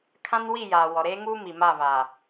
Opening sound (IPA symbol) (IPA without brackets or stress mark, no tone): kʰ